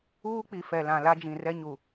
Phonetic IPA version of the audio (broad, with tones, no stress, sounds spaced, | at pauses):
uː˦ k͡p i˨ f ɛ˨ l ã˨ l a˦ d͡ʒ ĩ˨ r ɛ˦ ɲ u˨